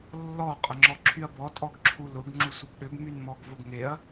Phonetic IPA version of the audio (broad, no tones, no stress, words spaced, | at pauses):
lːɔ qʼəŋ͡ǁɔǁʰyɐ̯bɔ tʼɔɡǁʰulʊɡ ŋ͡ǁusʷəbɗʏb mynmɔɡvʊɡŋeɐ̯